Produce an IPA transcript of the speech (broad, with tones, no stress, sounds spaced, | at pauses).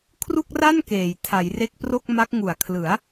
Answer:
kʰ r u˥˩ k̚ r a˥˩ n k eː˨˩ j tʰ a˩˦ j r e˦˥ k̚ p r o˥˩ k̚ m a˦˥ k̚ ŋ u˨˩ a̯ kʰ l ɯ˩˦ a̯